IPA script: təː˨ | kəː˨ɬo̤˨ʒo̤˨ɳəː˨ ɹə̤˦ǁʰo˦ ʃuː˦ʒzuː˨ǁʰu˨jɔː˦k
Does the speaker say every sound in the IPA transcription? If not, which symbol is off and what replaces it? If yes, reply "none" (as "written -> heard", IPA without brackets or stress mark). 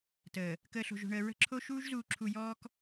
none